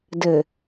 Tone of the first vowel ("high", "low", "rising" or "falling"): low